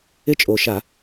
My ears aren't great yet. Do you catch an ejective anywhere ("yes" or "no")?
yes